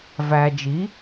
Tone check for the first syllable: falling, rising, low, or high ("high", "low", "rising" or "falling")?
low